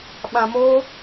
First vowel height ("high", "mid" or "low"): low